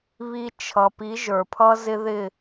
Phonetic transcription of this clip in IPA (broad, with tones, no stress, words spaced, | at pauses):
βi˧t͡ʃʰʌ˩pi˩˥ ʒə˞˩pʰʌ˥zɪ˥ðɪ˥˩